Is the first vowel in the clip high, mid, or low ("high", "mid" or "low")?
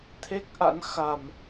mid